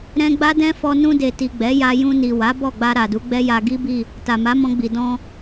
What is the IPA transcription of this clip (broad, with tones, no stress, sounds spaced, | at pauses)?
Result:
ɾ ɛ̃˧ ɡ͡b a˦ d ɛ̃˦ f ɔ˧ n ũ˧ d e˨ t i˨ ɡ͡b ɛ˨˦ j a˧ j ũ˧ n i˨ w a˨˦ b ɔ˦˨ ɡ͡b a˧ ɾ a˨ d u˨˦ ɡ͡b ɛ˦ j a˧ ɡ i˦ b i˦˨ | t a˨ m a˨˦ m ɔ̃˧ ɡ͡b i˨ d ɔ̃˧